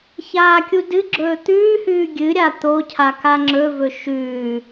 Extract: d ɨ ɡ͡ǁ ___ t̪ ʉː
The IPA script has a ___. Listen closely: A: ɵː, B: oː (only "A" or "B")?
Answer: A